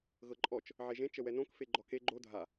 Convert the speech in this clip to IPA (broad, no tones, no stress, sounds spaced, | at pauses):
ɣ ɤ ǃʼ ɔ t͡ʃ | ʕ e ʒ ẽ t͡ʃ ə w ɛ n õ k f e ɡ͡ǃ ɔ k e ɡ͡ǃ o dʱ a